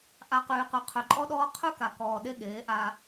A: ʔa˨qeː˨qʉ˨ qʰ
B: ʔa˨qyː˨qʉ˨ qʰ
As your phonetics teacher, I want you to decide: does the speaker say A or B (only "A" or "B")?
B